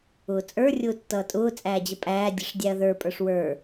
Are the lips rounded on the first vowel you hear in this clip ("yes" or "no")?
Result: yes